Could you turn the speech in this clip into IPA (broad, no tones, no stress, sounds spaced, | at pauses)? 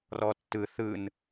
r ɔ tː ɯ θ ɯ n